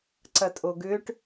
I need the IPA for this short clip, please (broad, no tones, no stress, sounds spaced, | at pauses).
ǀ ɐ tʼ o ɡ ʏː ʈ